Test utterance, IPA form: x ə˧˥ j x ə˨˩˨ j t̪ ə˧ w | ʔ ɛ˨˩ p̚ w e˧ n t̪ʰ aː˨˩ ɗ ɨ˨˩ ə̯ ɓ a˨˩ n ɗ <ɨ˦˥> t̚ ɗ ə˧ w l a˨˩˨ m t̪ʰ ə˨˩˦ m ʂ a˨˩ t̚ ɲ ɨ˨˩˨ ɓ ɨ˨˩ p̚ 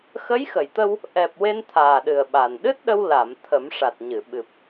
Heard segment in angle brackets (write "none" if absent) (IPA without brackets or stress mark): ɨ˦˥